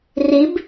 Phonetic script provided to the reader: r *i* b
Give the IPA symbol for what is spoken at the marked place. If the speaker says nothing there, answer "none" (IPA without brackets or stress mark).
i